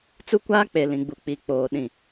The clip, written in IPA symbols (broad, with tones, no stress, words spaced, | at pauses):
t͡su˦kʷaː˦k͡pe˨ lĩ˨ɡ͡bu˨k͡pi˨ k͡poː˨ ɗĩ˨